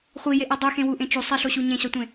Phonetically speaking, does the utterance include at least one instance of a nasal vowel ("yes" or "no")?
yes